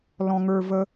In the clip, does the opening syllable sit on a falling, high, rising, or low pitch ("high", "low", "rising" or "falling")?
low